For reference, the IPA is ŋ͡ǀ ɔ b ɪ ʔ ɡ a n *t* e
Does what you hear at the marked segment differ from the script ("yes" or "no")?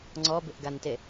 no